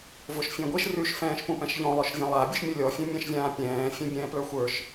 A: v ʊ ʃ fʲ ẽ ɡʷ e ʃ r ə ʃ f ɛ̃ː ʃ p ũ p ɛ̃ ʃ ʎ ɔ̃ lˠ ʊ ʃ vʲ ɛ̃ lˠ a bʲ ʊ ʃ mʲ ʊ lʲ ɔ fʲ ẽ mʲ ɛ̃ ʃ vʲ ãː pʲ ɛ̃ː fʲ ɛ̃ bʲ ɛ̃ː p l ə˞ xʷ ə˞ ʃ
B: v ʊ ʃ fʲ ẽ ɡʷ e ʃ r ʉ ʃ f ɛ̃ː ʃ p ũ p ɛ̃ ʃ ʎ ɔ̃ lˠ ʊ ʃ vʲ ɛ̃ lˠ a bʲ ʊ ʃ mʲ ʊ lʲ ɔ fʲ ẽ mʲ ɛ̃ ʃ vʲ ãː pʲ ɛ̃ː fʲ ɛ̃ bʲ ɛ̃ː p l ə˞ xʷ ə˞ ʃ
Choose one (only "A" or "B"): B